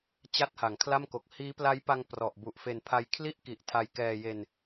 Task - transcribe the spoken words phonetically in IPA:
t͡ɕ a˥˩ t̚ h a˩˦ ŋ kʰ l a˥˩ m k o˨˩ k̚ h iː˦˥ p l a˦˥ j p a˧ ŋ p r ɔ˨˩ ʔ b u˨˩ ʔ f e˧ n pʰ a˧ j kʰ l i˥˩ ʔ k i˨˩ ʔ tʰ a˧ j k ɛː˧ j e˧ n

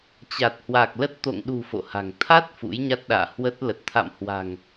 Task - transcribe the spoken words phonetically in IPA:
t͡ɕ a˨˩ t̚ h w a˨˩ k̚ l ə˦˥ t̚ t̪ o̰˧˨ ŋ ɗ ṳ˨˩ f o̰˧˨ h a̤˨˩ ŋ t̪ʰ a˦˥ t̚ f ṵ˧˥ j ɲ a˦˥ t̚ ɗ a̰ː˧˨ h w ə˦˥ t̚ l ə˨˩ t̚ t̪ʰ a̰˧˨ m h w a̤˨˩ ŋ

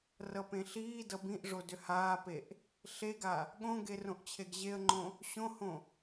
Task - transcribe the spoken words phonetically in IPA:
r ʌ p ẽ ɬ iː d ʌ b ĩ ʔ ʐ o d ʏ h aː p e ʔ | ɬ e ɡ a | ɠ õ ɡ e r õ ʔ t͡ɕʰ e ɡ ʑ e ə̯ ŋ͡ǃ õ | ɕ õ h õ

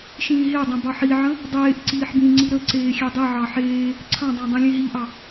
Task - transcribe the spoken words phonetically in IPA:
ʃ ĩː ɦ e dˤ ẽ b ɑ ħ i ʕ ə̃ | dˤ eː ʔ ǀ iː ħ b ĩ ŋ͡ǀ i ɾ ə ǀ eː xʲ e dˤ i ʕ ɑ ħ eː | ǀʰ ɑ̃ dˤ ẽ dˤ ĩ lʲ ẽ ɦ i ʔ ɑ

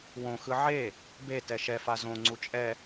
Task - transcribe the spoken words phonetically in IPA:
w õ x ɯ ʕ e | b e t ɛ ʃ ɛ f a z õ ŋ͡ǀ u t͡ʃʼ ɛ

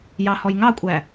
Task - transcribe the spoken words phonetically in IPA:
j ɑ h ɔ j ŋ ɑ kʷʼ æ

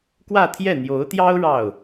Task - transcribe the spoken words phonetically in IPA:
k w ä˥˧ t̪ʰ j ɛ˥˩ n̪ j o˧˥ ʊ̯ t̪ j ɑ˥ ʊ̯ ɻ ɑ˥˩ ʊ̯

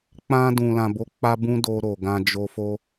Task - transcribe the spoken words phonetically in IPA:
k͡p ã˧ d ũ˨ l ã˨ b o˨˦ k͡p a˧ b ũ˦ d o˧ ɾ o˨ ɡ ã˧ d͡ʒ o˧ f o˧

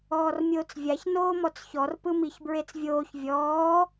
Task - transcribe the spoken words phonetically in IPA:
ɔː r mʲ oː t͡s vʲ a ç n oː m ɔ t͡s ç ɔ r p ɯ m i ç b ɹ e t͡s vʲ oː ç vʲ ɔː

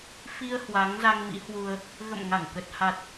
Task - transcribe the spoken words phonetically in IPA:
f i˧ ə̯ h w aː˨˦ ŋ z a˧ ŋ m ḭ˧˥ h w u˧ ə̯ | ɣ ə̰˧˨ m ŋ a˧˩ ŋ k ə˨˩ t̚ h a˨˩ t̚

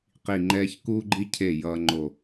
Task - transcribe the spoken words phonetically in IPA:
q i˧˩ ŋ͡ǃ ɛː˦ ç k uː˦ ɡ͡ǃ i˦ cʰ e˧˩ j ʌː˦ ŋ͡ǃ o˧˩

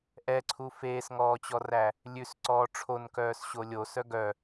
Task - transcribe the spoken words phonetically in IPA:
ʔ ɛ ǀʰ u f eː s ŋ ɔː t͡ɕ ɔ r æ | lʲ ʉ s ǀ ɔː ʈ͡ʂʰ o n k œː s ɕ o lʲ o s œ ɡ œ

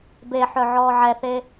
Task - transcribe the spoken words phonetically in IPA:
b e ħ œ ʕ ɔː ʕ ɛ θ e

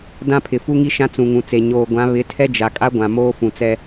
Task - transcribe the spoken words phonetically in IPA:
d ã˦ pʰ ɪ˨ f u˦ ŋ i˦ ʃ ã˦ t͡s ũ˨ ŋ ũ˨ t͡s e˨ ɲ oː˨ ɡʷ ã˨˦ β ɪ˨˦ tʰ ɛ˦ d͡ʒ a˨ kʼ a˦ ɡʷ ã˨ m oː˦ f ũ˨ t͡s ɛ˦

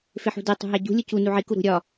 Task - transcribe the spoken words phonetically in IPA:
f e ħ ṳ d e tˤ ṳ ɦ æ ɟ ṳ lʲ u c u n u ʕ i k u ɾ ṳ ɾʲ ɒ

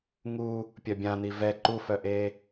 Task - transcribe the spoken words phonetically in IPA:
ŋ u | pʲ œ bʲ ã n̪ i v ɛ ǃ u f œ ʔ e

